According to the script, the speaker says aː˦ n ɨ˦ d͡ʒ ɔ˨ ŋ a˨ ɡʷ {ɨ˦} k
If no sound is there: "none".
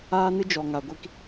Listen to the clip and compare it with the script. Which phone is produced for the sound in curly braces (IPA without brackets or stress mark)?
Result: i˦